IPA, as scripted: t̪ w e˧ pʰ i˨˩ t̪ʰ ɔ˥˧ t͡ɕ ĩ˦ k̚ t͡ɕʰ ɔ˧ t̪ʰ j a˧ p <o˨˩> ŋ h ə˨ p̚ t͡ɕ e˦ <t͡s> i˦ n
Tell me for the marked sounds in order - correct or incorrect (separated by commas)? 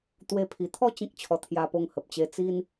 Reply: incorrect, correct